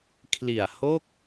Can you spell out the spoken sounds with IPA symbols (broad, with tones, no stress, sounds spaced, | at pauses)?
kʰ l i˨˩ a̯ h o˥˩ k̚